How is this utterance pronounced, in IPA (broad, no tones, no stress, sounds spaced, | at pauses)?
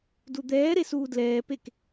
d u d̪ ɛː ɾ e s uː d l ɛː p e k